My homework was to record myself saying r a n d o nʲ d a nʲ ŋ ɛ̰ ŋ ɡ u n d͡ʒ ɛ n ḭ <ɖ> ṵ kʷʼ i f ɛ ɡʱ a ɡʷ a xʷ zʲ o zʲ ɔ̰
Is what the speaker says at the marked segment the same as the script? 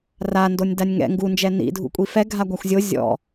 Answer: no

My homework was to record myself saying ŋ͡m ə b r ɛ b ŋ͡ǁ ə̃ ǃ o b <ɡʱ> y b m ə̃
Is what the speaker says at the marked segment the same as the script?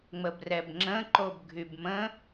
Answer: yes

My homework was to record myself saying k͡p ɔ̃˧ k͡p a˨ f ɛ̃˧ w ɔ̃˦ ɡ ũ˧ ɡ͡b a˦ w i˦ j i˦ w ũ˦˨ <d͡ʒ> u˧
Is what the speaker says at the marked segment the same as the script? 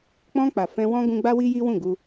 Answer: no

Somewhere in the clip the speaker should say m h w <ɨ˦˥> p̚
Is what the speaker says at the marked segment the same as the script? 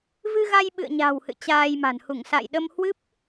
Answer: yes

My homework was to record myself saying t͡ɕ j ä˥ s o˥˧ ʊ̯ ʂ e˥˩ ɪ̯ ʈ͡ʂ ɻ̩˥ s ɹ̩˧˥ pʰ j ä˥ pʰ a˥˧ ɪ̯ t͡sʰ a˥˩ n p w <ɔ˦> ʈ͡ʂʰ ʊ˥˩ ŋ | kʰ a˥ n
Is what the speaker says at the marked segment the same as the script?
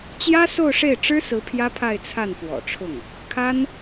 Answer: no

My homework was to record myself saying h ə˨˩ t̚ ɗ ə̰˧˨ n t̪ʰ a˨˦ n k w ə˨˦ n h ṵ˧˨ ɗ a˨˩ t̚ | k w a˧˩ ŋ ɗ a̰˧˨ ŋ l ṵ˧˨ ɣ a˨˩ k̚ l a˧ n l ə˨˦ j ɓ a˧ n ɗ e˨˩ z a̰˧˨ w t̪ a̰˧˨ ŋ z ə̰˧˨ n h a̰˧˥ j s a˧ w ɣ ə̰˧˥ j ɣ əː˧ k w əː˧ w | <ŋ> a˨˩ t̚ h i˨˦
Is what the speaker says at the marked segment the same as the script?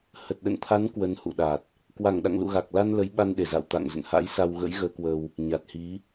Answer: no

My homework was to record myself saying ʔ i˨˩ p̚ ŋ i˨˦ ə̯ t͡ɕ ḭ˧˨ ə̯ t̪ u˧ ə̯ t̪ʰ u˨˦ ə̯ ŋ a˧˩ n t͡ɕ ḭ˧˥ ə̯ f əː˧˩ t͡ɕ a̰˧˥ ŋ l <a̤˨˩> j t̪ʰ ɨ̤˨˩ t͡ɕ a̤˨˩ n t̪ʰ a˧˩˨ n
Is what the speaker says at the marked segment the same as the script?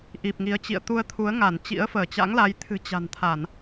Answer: no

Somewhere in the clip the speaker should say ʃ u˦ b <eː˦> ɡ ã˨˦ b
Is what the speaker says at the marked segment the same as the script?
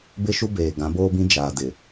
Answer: no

